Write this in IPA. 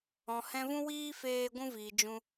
ɔ̃˨ h ɛ̃˧ v ũ˦ w iː˦ f eː˧ ɡʷ ũ˧ v iː˨ d͡ʒ ũ˧

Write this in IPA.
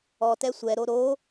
ɔ t ɛ sʷ ɛ ɾ o ɾ o

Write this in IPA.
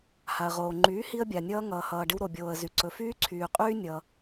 h a˩ ə̯ ʁ oː˩ ŋ͡ǃ yː˩˥ h i˧ ə̯ bʲ a˩ nʲ ʌː˧ ŋ ʌː˩ h ʌː˩ ɖ ɪ˧ w ɾ o˩ bʲ oː˩ ə̯ z y˩ ǀ ɵ˩ f yː˧ ǀʰ yː˩ qʼ yː˧ nʲ ʌ˩

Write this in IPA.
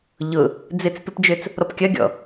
ʎ ʊ | d͡z ɪ t͡s p ɪ p d͡ʒ ø t͡s | ɾ ɔ p kʲ ɐ ɡʲ ɔ̰

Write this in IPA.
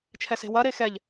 t͡ʃʰ ɛ s e̤ w ɐ ɾ e x ɛ ʎ

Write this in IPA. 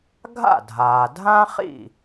ɡʱ a̰˥˩ dʱ aː˩ dʱ ã˥ χ ḭ˥˩

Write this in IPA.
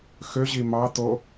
x ø ʑ i m ɑ t̪ o

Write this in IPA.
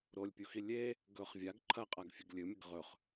ɾ o lʲ pʲ u x i lʲ e | ɡ ɵ χ vʲ a ɡ ǃʰ ɐ qʼ a ɡ fʲ ɨ ɡ lʲ ɨ mʲ ɨ ɡ ʁ ɵ χ

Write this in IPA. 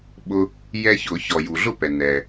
ɓ ʊ˧ | j ɛ˧ ç ʊ˧˩˧ ç ɔ˩ j u˩ ɮ ʊ˥˩ p ɛ˩ n ɛ˩

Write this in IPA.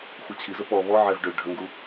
xʷ ə t͡ɕʰ i z ə p ɔ β ɔ ʕ ɛ v ɖ ø ɖʱ ə ŋ ɡ u

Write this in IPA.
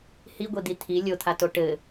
h i ɡʷ i d̪ i t̪ʰ i lʲ o t̪ʰ a t o ʈ ɘ

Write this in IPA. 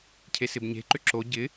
cʰ e s ɪ b ɲ e̤ ǃ ʏ ǁ o ɟ ɪ

